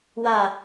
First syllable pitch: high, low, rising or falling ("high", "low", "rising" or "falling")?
falling